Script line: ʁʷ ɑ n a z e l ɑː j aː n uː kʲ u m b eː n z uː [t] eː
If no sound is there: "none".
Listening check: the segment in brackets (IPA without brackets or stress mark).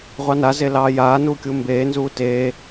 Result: t